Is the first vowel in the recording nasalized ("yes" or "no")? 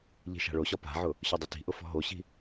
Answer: no